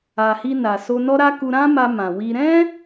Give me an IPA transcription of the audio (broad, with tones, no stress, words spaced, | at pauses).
a˨hi˧na˨ so˧nɔ˦ɾa˦ ku˧ɾã˦ma˧ mã˨wi˧ ɾɛ̃˦